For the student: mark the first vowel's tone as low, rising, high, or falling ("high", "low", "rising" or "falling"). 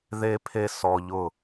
high